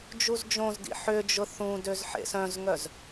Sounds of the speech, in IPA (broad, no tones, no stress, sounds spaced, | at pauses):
d͡ʒ u z d͡ʒ õ z d ḭ ħ ʏ d͡ʒ ʊ θ ũ d ø z ħ ḛ s œ̃ z ŋ œ z